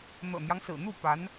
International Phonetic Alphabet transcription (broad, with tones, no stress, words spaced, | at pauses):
n̪ɤ̰˨˩n̪jɑ˦ŋsɹ̩˨˩n̪u˥˩ pa˧˥n